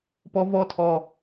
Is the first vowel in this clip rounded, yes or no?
yes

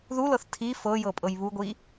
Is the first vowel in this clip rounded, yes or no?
yes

